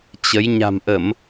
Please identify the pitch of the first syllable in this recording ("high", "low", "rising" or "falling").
rising